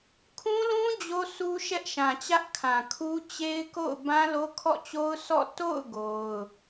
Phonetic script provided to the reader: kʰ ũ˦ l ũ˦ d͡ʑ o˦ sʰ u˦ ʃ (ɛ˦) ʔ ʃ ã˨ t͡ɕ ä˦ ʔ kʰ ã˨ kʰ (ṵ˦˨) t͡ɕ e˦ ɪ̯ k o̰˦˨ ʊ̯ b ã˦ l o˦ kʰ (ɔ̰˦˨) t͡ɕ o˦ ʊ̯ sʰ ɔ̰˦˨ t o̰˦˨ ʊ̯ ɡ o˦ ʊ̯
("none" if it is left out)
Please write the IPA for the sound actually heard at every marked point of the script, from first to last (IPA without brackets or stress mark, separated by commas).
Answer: ɛ˦, u˦, ɔ̰˦˨